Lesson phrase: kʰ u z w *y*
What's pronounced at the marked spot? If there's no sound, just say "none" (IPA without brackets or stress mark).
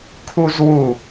u